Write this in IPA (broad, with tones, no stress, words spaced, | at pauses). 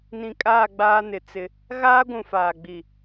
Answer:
nĩ˨kʼaː˦˨ ɡ͡baː˦nɪ˨t͡sɪ˦ | ɣaː˦ɡʷũ˨faː˨ ɡ͡bi˨